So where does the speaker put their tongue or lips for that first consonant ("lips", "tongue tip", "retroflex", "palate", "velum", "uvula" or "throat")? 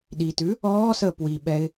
tongue tip